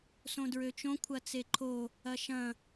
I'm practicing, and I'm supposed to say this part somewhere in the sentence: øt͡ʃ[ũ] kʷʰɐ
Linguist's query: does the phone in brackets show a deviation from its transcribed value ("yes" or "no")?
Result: yes